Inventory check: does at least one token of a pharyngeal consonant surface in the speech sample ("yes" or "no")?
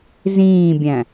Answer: no